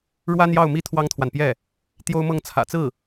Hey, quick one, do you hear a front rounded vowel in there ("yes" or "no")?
no